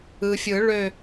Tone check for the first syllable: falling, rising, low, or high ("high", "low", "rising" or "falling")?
low